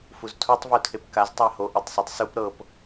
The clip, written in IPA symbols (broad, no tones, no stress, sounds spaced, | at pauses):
f u z tʰ u tˤ v u tʰ e p k a z tˤ a h o ʔ e tˤ sˤ i tˤ s u p ɾ ɤ p